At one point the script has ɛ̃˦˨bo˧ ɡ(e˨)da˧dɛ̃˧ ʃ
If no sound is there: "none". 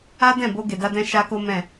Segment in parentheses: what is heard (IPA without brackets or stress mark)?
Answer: e˨